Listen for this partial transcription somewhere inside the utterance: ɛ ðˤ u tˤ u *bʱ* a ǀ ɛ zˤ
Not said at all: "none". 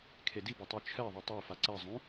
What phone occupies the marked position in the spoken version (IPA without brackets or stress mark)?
f